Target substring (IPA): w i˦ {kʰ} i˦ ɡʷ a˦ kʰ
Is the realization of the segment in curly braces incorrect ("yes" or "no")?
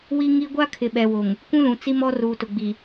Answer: yes